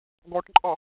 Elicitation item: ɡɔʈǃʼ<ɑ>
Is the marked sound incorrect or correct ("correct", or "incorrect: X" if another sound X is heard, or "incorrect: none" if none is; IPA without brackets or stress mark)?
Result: correct